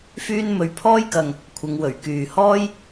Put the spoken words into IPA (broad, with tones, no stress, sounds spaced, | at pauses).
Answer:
f yː˥ n m ɵ˧ ɥ pʰ ɔː˥ j k ɐ˨ ŋ | kʷʰ ɪ˨˧ ŋ w ɵ˨˩ ɥ k yː˨ h ɔː˥ j